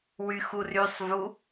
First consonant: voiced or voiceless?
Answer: voiced